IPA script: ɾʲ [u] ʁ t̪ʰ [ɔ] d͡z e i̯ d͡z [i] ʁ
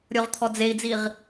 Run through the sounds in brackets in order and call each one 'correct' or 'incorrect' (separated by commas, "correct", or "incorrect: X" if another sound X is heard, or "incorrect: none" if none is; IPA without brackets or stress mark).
incorrect: o, correct, correct